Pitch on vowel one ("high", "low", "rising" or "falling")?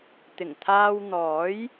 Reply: low